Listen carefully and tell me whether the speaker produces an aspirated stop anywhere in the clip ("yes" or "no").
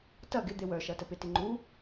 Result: no